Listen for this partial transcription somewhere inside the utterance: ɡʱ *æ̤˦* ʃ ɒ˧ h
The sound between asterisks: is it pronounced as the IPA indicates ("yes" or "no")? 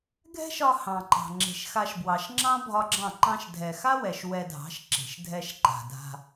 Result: no